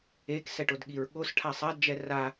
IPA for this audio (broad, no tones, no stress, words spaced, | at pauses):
eksɛʈ odɠiɹɠosʈʰa sˤadd͡ʒɛ ra